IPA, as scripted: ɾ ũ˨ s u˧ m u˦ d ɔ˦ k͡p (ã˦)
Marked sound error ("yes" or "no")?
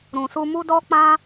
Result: no